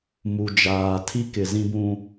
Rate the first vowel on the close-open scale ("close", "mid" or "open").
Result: close